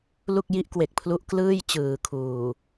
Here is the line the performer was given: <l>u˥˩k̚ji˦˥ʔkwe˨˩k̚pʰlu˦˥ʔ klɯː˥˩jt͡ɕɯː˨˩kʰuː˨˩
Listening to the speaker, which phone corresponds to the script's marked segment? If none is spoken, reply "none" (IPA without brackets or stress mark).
l